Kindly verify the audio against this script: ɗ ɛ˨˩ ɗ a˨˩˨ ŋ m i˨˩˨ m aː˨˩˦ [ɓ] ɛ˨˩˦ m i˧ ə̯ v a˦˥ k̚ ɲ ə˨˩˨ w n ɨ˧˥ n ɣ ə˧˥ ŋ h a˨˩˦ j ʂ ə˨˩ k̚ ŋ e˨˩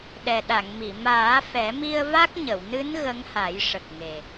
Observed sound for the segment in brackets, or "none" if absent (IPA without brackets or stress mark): f